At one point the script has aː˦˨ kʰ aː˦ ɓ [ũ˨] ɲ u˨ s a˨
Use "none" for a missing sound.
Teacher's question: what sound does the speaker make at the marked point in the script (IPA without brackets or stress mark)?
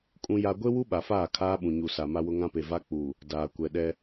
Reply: ũ˨